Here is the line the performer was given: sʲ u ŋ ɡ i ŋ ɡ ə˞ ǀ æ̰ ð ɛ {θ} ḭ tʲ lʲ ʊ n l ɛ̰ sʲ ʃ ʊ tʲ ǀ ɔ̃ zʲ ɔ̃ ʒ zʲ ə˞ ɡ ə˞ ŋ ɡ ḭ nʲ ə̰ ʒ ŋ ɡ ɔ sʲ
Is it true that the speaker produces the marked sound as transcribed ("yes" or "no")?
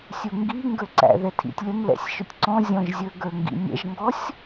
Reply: no